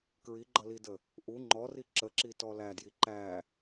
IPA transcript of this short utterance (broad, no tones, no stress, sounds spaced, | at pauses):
k ɹ i ɡ͡ǃ ʌ l i d ə | ʔ u ŋ͡ǃ ɔ r i ǁ ə ǁ i t ɔ l æ d j i ǃ æ